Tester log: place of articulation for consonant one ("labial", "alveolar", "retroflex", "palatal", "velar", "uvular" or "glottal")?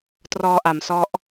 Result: alveolar